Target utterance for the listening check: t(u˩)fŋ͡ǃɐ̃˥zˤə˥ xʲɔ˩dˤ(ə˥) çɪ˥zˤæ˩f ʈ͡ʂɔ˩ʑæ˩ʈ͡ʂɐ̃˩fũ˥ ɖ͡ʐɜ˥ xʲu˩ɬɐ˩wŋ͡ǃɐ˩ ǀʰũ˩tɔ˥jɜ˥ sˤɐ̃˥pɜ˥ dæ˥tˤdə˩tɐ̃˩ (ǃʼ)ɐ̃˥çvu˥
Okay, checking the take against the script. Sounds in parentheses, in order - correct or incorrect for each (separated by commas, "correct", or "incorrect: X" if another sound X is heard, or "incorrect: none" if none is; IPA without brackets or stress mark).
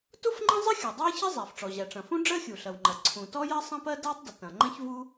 incorrect: u˥, incorrect: æ˥, incorrect: ŋ͡ǃ